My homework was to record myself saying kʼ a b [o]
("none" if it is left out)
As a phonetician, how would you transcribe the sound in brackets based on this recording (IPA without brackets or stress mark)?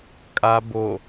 o